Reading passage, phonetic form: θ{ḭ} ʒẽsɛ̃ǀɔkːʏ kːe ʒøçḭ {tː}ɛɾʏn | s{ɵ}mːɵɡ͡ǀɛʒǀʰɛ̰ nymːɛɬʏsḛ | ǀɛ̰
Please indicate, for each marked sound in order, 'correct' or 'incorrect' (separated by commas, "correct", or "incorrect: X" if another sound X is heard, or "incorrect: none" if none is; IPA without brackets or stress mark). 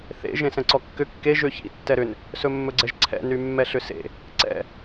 incorrect: ḛ, correct, correct